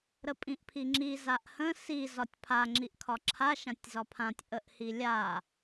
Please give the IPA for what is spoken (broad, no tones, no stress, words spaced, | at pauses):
ɾəpʼĩʔpʰiŋ͡ǁi zaʔhə̃ si zɒtʲpʰa ŋ͡ǁiʔkʰɒǁʰa ʃãtʲzɒpʰãtʲ ʔəʔhilʲa